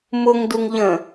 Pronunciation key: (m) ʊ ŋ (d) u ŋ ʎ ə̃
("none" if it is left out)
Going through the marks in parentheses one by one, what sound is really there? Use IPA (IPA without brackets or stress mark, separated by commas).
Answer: m, d